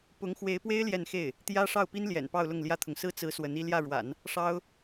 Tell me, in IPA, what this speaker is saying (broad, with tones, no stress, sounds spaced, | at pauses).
p ʊ˧˥ ŋ x w e˧˥ ɪ̯ p w e˥ ɪ̯ l j ɛ˥˧ n x e˥˩ ɪ̯ | t̪ j ä˥ ʂ ɑ˥˩ ʊ̯ p i˥ n l j ɛ̰˨˩ n p ɑ˥˧ ʊ̯ l ʊ˥˩ ŋ l j ä˥ t̪ʰ ʊ˨ ŋ s ɹ̩˥˩ t͡s ɹ̩˧˥ s w ə˧˥ n i˥˧ l j ä˥˩ ɻ w a̰˨˩˦ n | ʂ ɑ˥ ʊ̯